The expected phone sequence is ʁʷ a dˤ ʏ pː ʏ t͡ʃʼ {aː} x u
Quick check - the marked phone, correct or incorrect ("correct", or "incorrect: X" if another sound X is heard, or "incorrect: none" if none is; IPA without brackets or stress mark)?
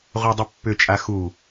incorrect: a